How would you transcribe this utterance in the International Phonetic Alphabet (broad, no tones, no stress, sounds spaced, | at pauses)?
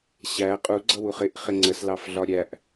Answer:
ɕ æ qʼ u ɡ͡ǀ ʌ w u χ ɪ ʔ χ ɪ ŋ͡ǀ ə s l ɑ f ɮ ɒ ɾʲ æ ʔ